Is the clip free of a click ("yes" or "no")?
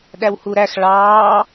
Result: yes